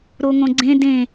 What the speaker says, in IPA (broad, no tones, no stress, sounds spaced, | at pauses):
ɾ o ŋ õ ɡ͡ǀ ẽ d ẽ